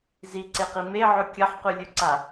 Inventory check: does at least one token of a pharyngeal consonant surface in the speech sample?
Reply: yes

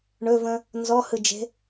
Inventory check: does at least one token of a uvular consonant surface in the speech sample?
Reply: no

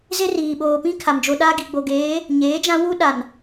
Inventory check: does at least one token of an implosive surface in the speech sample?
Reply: yes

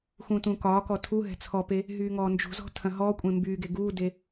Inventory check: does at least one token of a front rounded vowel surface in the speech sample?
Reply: yes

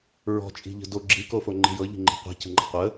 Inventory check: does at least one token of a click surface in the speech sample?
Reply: yes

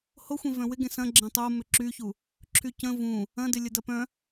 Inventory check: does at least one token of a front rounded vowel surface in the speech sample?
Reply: yes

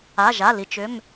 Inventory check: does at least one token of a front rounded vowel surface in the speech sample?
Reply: yes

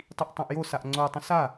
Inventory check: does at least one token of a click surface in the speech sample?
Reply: yes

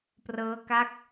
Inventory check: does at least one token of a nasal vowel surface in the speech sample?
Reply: no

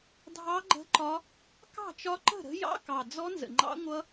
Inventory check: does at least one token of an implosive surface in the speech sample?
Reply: no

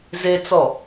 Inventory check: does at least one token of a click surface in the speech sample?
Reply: no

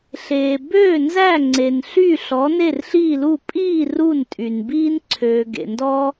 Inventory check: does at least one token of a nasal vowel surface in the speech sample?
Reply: no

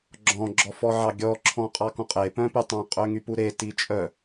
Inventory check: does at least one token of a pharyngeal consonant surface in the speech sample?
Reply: yes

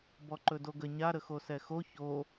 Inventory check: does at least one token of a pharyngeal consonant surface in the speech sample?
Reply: no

